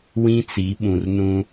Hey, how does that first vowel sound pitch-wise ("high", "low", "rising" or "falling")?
high